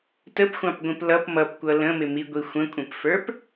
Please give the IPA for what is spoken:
t ə p xʷ ɑ̃ p ɡʷ ĩ p l ʌ p m ʌ p kʷ ʌ l ə̃ m ɪ m i ɡʷ i xʷ ə̃ kʷʼ ə̃ p f ə˞ p

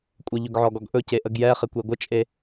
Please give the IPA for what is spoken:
kʷʼ ə ʎ ɵ ɡ ʕ ɔ ɡ ɔ ɡ ʔ ɵ c e ʔ ə ɡ j ɛ χ e kʷ e ɡʷ ə t͡ʃʼ e

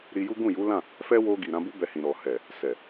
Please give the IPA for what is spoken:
ɾ i˧ j u˦ ɡ ũ˦˨ j u˨˦ l ã˦˨ | f ɛ˦ w o˧ ɡ i˨ ɾ ã˧ b u˦ b ɛ˧ h ĩ˨ ɾ ɔ˨ h ɛ˨ | s ɛ˨

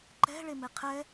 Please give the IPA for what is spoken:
ǃ ɛ̤ ɭ e m e qʰ ɛ

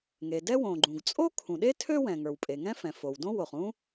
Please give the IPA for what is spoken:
ŋ e˩ d ɛ˥ w õ˩ ɡ͡ǃ ũ˩ ɡ t͡sʼ o˥ kʰ ũ˩ ɗ e˥ tʰ ø˥ w ɛ̃˩ ŋ ə˞˩ w pʼ e˩ ŋ ɛ̃˥ f ɛ̃˩ f o˩ w d õ˥ w o˩ χ ũ˥

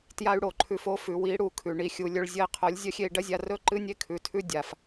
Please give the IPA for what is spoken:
t j a˦ y̯ ɽ o˨ ǃʰ ʉ˧ f o˦ f ʉ˨ w i˨˦ ɽ u˨ kʰ ʉ˨ ɳ i˨ xʲ u˨ lʲ ɵ˧ ɭ zʲ ɐ˧ i̯ qʰ o˨˦ lʲ zʲ ɐ˦ xʲ e˧ i̯ ɖ ɐ˦ zʲ a˧ r ɵ˦ ǃ ɨ˦ nʲ e˦ kʰ ʉ˨ tʰ ʉ˦ dʲ a˨ f

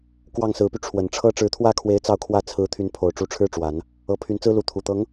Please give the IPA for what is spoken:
k w ɑ˥˩ ŋ s ɹ̩˧˥ p y˧ ʈ͡ʂʰ w ə˨˩ n ʈ͡ʂʰ ɤ˥ ʈ͡ʂ ɻ̩˧˥ t̪ʰ w ä˥ kʰ w e˧˥ ɪ̯ t͡s ɑ˥˧ ʊ̯ kʰ w ä˥˩ t͡sʰ ɹ̩˧˥ t̪ʰ y˧˥ n pʰ o˨˩ ʊ̯ ʈ͡ʂ u˧˥ ʈ͡ʂʰ ɻ̩˥ ʈ͡ʂ w a˨˩˦ n | ɤ˧˥ pʰ y˧˥ n t͡s ɹ̩˥ l u˧˥ t̪ʰ u˨˩ t̪ ɤ˧˥ ŋ

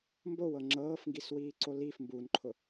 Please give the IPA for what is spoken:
m b o w ɤ ŋ͡ǁ ɤː f ŋ ɡ i s w iː ǀ o l i f m b u n ǃʰ ʊ

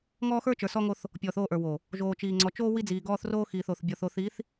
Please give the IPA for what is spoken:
ŋ ɔː˦ x ə˞˦ t͡ʃ ə˞˨ s ɔ˦ ŋ o˦ θ | pʲ ɔː˨ θ oː˦˨ ʔ ə˞˨ w o˨ | ʒ oː˨ t͡ʃ iː˨ ŋ͡ǀ ɔ˨ t͡ʃ oː˦ w i˦ d͡z iː˨ ɡ ɔː˦ θ r oː˦ x iː˨ θ o˨ θ bʲ ɔ˨ θ o˨ θ i˨˦ θ

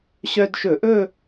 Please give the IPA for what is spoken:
ɕ œ˧ d ʃ ɵ˧˩˧ ʔ ɵ˥˧

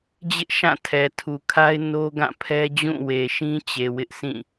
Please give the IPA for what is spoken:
d͡ʑ ɪ˦ ʔ ʃ ã˦˨ tʰ ɛ˨ tʰ u˨ kʰ a˦ ɪ̯ n o˦ ɡ ã˦˨ pʰ ɛ˦ d͡ʑ ũ˦˨ w e˨ ʃ ĩ˦ t͡ɕ e˨ w ɪ˦ ʔ s ĩ˦˨

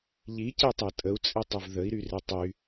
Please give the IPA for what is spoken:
ʎ i c e tˤ e tʼ ə u̯ t͡sʼ i tˤ ɘ v ð ə i̯ ɾ y r e tˤ y

